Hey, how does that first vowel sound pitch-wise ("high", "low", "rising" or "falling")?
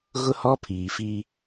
high